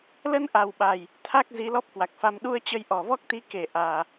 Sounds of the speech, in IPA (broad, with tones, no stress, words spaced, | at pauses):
lə˧nʔa˨˩wɓa˨˩j | t̪ʰa˦˥k̚ zi˨˦lɔ˦˥p̚kwa˨˩k̚fa˧m ɗu˧ə̯ t͡ɕə˧jʔɔ˨˩vɔ˦˥k̚ t̪i˨˦ ke˧˩ʔaː˨˩